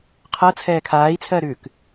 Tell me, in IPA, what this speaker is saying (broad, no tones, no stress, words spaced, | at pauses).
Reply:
qʰɤ t͡sʰɛːkʰaːi̯t͡sʰɜɾʉːk